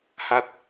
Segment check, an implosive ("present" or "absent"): absent